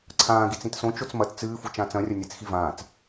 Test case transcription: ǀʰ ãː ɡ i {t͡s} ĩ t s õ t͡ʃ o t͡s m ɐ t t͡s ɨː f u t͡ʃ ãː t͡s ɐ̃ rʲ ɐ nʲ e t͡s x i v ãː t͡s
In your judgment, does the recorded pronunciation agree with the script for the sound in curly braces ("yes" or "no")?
yes